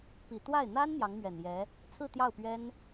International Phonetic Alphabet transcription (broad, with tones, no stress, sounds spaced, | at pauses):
p i˨˩ t̪ w a˥˩ ɪ̯ n̪ a˥ n n̪ j ɑ˧˥ ŋ m ɥ ɛ˨˩ n j ɛ˧˥ | t͡sʰ ɹ̩˥˧ t̪ j ɑ˥˩ ʊ̯ p ɥ ɛ˥ n